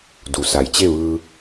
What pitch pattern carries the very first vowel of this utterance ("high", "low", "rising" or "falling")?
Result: low